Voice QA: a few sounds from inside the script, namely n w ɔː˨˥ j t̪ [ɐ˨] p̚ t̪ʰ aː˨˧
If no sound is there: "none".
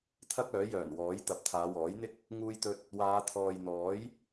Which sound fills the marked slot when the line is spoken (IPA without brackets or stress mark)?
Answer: ɐ˨